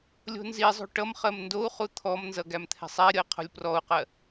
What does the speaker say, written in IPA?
lʲo̤nzizˤo̤ ʈʌmχɜm ndou̯χu t̪ʰɔmnzʌ ɡæmt̪ʰɛ̤sˤɛɾʲʌi̯ qʰo̤lʲprɔu̯qɜ

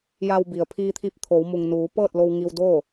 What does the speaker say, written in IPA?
ja˧wbi˩ə̯ pʰiː˧t̪ʰi˧p̚t̪ʰoː˩˧w mu˩ŋnuː˩˧ pɤː˥˨t̚lo˧w ŋi˧wdoː˥˨

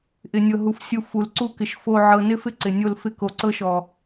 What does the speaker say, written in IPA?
ʔɪ˨nʲɤ˨ɦu˨f sʲu˨ fu˨lǀu˦kɪ˨ʃ fo˦ ʕɤ˨nɪ˦fɪ˦ ǀɪ˨nʲo˦l fɪ˦˨ko˨ǀɤ˦ʃɔ˨

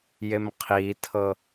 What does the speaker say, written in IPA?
jemqʰitʰɤ

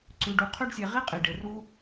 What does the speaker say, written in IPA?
ǀʉ˨ɖu˨ qʰʉ˦ɖsʲe˨ʁi˥ qʼi˩ ɖe˩ru˦

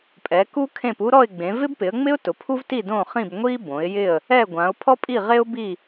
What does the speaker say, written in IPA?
pʼɛ˨˦ku˥kʰẽ˥˧pu˥ ɾɔ˥˧ɪ̯ɡ͡bẽ˨˦ vɪ˥bpɪ˨˦ə̯ŋ͡mɪ˥ʊ̯ tʊ˨˦pʰu˥vti˥˧ dõ˥˧χĩ˥˧b ŋʷi˥bõ˨˦ɪ̯jɪ˥˧ə̯ | ɛ˥˧ɡʷã˨˦ʊ̯ pʰɔ˥pʼi˥˧ʁe˥ʊ̯bi˥˧

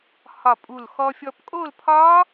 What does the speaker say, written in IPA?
hɒ˧˩pʼu˧˩l xɔ˧fʲɔ˧pkʼo˥˨lpʰɒ˦˥

